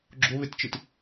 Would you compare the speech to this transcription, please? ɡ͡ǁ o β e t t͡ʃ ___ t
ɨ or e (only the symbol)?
ɨ